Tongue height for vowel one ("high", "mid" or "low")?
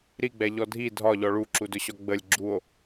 high